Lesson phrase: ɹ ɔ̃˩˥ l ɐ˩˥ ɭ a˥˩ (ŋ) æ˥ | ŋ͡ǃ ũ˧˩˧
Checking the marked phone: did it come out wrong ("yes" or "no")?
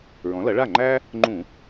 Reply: yes